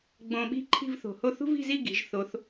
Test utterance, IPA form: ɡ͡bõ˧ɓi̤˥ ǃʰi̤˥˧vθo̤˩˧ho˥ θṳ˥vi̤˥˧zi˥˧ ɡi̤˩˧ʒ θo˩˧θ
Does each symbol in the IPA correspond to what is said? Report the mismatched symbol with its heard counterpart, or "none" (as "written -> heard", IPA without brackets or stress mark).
none